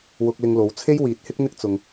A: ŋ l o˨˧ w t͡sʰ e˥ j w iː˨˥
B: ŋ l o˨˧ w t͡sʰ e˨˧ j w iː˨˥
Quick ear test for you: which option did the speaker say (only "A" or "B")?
A